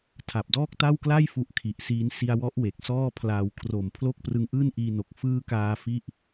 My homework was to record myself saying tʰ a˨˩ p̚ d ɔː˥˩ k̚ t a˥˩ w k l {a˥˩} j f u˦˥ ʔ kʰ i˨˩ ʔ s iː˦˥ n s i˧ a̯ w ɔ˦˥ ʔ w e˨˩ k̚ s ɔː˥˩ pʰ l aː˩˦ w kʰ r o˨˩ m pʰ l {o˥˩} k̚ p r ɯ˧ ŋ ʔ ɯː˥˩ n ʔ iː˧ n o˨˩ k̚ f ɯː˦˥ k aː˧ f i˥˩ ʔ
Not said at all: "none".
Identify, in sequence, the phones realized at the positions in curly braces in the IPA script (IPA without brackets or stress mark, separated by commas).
a˥˩, o˥˩